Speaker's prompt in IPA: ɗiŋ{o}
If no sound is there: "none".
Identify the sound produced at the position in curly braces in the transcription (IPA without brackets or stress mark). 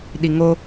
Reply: o